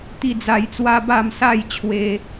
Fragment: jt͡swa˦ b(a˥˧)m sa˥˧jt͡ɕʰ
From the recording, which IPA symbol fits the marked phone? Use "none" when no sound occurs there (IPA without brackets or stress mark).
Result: a˥˧